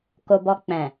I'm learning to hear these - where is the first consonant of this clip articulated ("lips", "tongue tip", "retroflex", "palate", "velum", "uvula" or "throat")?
velum